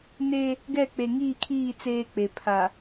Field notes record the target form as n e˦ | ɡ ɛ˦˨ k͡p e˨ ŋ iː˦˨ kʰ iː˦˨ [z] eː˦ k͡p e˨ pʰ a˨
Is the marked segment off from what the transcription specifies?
yes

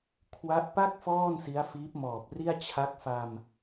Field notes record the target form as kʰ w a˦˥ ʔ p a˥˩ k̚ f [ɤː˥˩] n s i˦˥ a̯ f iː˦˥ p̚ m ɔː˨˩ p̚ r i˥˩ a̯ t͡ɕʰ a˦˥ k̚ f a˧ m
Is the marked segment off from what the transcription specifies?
yes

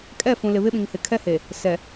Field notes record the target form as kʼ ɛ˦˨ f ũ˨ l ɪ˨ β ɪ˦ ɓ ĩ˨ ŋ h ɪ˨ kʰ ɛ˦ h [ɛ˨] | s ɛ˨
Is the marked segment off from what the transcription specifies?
yes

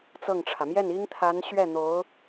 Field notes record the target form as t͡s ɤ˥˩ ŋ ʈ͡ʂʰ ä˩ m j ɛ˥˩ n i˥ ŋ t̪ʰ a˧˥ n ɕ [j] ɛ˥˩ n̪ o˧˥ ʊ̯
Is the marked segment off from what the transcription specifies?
yes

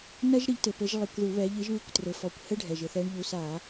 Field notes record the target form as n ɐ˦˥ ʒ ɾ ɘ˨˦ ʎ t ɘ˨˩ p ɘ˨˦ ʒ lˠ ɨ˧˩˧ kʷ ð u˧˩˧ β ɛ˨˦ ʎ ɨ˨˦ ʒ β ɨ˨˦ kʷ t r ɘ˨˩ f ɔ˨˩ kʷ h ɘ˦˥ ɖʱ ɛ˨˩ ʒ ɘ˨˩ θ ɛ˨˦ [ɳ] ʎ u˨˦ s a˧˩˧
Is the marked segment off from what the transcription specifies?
no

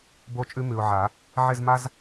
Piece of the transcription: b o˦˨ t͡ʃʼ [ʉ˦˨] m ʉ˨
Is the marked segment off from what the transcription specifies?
yes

